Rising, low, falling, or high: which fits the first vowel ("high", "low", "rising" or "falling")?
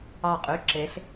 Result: falling